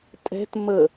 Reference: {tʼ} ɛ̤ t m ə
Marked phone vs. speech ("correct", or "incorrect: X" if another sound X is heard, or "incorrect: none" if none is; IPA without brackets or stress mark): correct